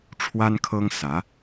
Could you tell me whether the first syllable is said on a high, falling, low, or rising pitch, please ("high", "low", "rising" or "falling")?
high